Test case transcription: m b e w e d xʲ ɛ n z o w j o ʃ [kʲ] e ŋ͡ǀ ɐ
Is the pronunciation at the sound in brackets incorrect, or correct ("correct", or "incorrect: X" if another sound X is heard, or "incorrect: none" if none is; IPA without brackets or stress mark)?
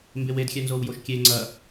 correct